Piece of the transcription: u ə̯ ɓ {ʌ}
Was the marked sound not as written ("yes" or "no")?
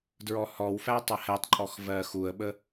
yes